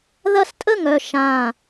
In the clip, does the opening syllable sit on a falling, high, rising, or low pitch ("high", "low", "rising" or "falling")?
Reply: high